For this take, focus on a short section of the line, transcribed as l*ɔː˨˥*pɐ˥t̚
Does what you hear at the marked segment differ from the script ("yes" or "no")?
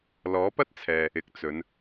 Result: no